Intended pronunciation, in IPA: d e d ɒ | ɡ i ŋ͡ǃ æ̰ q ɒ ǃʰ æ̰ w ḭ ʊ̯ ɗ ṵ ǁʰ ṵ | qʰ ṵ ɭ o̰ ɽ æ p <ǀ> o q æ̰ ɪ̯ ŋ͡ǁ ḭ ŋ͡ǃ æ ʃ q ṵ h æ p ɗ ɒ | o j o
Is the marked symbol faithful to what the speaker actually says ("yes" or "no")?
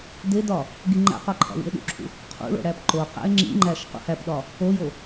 no